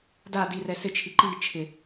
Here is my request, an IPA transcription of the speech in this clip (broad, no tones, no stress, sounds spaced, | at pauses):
d a d i r ɛ s ɪ t͡ʃʰ i ǃ i t͡ʃʰ ɪ